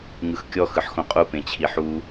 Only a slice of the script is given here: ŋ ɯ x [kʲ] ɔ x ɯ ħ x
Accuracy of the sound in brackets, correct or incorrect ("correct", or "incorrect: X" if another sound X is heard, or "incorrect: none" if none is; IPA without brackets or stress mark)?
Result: correct